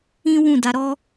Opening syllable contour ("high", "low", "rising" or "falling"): high